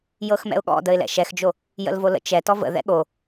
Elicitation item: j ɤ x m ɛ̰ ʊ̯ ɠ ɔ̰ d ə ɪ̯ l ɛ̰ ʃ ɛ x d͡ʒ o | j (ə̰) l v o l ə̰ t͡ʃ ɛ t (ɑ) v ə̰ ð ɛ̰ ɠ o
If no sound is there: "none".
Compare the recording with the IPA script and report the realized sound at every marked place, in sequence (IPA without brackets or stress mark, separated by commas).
ə̰, ɔ